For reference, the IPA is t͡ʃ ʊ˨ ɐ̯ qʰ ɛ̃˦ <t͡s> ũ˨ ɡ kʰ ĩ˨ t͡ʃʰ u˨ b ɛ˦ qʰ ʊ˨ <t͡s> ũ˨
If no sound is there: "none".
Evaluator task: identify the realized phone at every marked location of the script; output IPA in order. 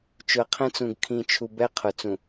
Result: t͡s, t͡s

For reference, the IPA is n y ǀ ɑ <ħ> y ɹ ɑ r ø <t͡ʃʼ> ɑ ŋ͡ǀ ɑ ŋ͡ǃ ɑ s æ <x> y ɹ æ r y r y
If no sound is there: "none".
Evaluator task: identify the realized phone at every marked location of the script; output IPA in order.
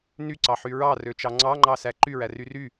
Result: ħ, t͡ʃ, ǃ

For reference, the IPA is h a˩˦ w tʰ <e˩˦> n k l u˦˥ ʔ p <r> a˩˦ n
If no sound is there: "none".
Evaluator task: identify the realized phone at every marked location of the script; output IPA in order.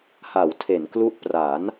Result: e˩˦, r

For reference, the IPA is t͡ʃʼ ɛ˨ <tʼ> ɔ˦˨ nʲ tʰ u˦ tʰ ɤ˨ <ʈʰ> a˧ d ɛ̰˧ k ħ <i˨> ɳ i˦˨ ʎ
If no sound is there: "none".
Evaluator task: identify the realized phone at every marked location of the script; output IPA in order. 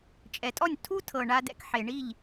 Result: tʼ, ɳ, e˨

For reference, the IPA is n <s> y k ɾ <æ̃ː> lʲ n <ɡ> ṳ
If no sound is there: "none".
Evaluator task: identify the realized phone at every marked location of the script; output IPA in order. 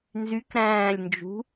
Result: z, æ̃ː, d͡ʒ

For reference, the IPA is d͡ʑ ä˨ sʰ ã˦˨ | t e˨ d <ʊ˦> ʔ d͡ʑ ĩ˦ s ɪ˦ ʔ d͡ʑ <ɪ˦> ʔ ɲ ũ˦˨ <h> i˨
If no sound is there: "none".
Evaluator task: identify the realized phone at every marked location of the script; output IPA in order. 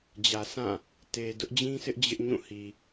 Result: ʊ˦, ɪ˦, h

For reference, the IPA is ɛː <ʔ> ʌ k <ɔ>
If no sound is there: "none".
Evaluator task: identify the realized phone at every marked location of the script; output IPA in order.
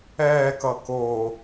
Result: k, o

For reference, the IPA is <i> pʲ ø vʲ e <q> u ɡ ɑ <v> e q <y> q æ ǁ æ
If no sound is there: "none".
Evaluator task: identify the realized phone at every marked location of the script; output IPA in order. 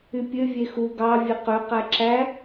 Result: y, x, vʲ, ø

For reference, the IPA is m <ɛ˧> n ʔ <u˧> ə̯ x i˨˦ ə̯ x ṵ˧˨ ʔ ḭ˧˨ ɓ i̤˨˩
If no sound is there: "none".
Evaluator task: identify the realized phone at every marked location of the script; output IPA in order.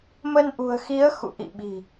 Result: ə˧, ṳ˨˩

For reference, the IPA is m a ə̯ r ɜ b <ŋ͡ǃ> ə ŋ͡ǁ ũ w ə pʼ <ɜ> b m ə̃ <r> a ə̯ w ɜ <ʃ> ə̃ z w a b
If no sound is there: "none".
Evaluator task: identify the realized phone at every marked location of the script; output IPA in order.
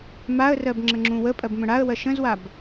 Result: ŋ͡ǁ, ɜ, ɽ, ʃ

